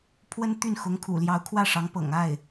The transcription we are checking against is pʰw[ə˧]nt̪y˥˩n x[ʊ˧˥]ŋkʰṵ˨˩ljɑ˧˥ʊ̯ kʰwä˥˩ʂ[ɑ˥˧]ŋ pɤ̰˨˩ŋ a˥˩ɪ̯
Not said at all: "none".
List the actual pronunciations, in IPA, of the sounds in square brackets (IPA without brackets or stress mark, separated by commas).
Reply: ə˥, ʊ˧˥, ɑ˧˥